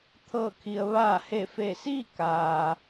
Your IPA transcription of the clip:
t̪ʰ ɤː˧˩ kʰ i˩ ə̯ ʋ aː˧˩ h e˧˩ f e˧˩ s iː˥˨ k aː˩

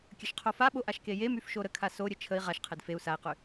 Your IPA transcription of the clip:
kʲ ə ʃ qʰ o f a ɓ o ʔ a ʃ k e j e m y f ʃ o ɾ ə kʰ a s o ɾʲ ə t͡ʃʰ ə i̯ ʁ a ʃ qʰ e d f e u̯ s a i̯ q y

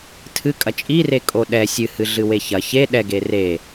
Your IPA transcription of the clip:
tʰ ɨ kʼ ɐ t͡ʃʼ i r e kʼ o ɗ ɛ sʲ ɨ h ɨ ɮ ɨ w e ç ɐ ç e ɗ ɛ ɡ e r e

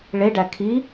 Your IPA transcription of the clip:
ɭ e ɖ æ kʰ i

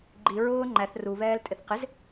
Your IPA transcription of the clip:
ɡ͡ǃ i ɹ ʊː ŋ͡ǃ æ θ r u β ɛː l tʼ ɪ θ q ɪ z

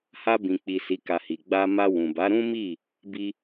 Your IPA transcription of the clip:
h a˧ b ĩ˨ k͡p i˨ s i˨˦ k a˧ h i˨ ɡ͡b a˧ m a˧ w ũ˨ b a˨˦ ɾ ũ˦ m i˦˨ | b i˦

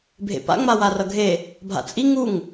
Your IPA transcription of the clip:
bʱ ḛ p a̰ ŋ͡m a w a r ʌ ɡʱ e | bʱ a̰ t͡sʼ i ŋ u ŋ

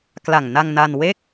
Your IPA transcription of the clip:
k l a˨˩ ŋ n a˧ ŋ n a˧ n w e˥˩ k̚

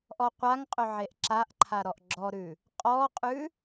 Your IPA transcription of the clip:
ʔ ɔ qʷ a ŋ qʼ ɵ ʕ e ʔ ǁ a ʔ ǃʰ a ɾ ɔ ʔ ɡ͡ǁ ɔ ɾ ʉ | qʼ ɔ qʼ ʉ

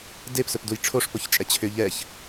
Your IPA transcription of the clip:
d e p s ɵ p d u j ʈ͡ʂʰ o ʂ p o ç t͡ʃʼ ɛ t͡ɕʰ ʏ ʎ ɛ ç

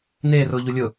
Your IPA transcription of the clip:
n eː r ʊː ʎ u lʲ ʊ

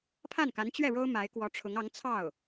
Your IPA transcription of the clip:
pʰ a˥˩ n k a˧˥ n t͡ɕ ɥ ɛ˥˩ ɻ o˥ ʊ̯ m a˧˥ ɪ̯ k w ɔ˧˥ ʈ͡ʂʰ ʊ˧˥ ŋ ɑ˧˥ ŋ t͡sʰ ɑ˥˩ ʊ̯

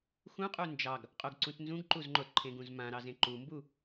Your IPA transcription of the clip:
x ũ qʼ u n d͡ʒ ɑ ɡ | qʼ o ɡ ǀ ũ t n z ũ ɡ ǃ u z ŋ͡ǃ o t ǃʰ ẽ ɡ ũ z m ã ɾ ɑ z ẽ ǃ u m b u

